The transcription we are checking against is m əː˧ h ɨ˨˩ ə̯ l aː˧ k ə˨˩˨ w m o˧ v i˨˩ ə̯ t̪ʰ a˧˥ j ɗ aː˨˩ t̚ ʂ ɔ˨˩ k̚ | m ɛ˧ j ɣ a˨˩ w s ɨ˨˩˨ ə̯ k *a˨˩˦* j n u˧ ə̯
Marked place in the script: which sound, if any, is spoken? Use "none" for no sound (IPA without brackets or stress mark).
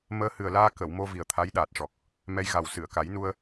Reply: a˨˩˦